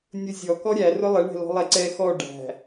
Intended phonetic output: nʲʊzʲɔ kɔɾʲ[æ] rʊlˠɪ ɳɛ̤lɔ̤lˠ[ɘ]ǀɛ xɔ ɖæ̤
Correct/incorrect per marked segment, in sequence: correct, incorrect

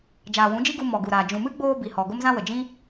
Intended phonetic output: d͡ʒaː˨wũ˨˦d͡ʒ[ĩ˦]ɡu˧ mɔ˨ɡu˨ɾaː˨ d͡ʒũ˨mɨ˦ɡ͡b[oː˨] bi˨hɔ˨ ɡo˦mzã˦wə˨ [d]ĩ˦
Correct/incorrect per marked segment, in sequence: incorrect, incorrect, incorrect

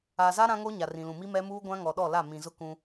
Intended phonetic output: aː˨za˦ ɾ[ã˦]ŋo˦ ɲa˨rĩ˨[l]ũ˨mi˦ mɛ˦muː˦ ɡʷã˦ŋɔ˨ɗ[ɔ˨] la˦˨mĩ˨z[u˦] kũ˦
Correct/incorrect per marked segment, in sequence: correct, correct, incorrect, incorrect

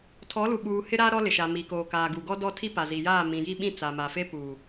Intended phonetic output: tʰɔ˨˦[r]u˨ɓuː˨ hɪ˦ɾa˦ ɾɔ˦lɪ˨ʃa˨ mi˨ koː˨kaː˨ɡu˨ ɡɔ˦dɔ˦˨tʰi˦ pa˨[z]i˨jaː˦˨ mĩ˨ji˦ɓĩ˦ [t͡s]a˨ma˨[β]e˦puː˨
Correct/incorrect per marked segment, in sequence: incorrect, correct, correct, incorrect

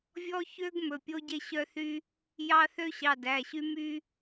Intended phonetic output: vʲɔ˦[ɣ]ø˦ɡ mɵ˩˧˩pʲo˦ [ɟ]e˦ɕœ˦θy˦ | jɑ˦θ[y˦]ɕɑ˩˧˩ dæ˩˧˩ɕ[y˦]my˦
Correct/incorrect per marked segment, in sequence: incorrect, correct, incorrect, correct

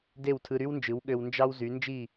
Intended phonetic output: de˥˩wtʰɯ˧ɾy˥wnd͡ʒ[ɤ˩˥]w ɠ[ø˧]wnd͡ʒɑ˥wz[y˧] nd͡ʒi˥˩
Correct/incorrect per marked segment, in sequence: incorrect, correct, incorrect

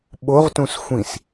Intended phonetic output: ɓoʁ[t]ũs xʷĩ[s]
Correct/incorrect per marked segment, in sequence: correct, correct

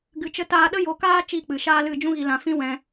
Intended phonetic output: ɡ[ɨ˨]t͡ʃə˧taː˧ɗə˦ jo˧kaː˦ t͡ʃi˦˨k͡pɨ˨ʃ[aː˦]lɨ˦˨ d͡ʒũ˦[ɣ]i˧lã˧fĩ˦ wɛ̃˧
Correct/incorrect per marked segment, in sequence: correct, correct, correct

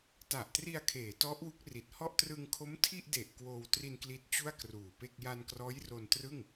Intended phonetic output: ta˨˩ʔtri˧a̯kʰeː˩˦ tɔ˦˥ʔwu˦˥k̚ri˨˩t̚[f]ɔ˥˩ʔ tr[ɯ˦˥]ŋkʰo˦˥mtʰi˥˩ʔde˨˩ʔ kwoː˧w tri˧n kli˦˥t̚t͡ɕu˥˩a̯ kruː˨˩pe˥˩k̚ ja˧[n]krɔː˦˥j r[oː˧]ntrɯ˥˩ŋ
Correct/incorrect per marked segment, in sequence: incorrect, incorrect, correct, incorrect

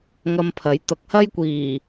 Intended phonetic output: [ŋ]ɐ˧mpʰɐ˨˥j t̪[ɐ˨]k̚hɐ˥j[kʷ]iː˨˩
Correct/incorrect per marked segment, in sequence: correct, incorrect, correct

